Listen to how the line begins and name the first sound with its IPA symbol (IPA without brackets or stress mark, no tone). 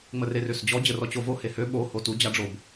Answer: ŋ͡m